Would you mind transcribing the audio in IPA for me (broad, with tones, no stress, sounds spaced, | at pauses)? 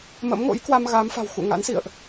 m ə̰˧˥ m ŋ o̰˧˥ j k w a˧ m ɣ a˨˦ m f a̤˨˩ w x ṵ˧˨ ŋ a̰˧˥ n s ḭ˧˨ ə̯ ʔ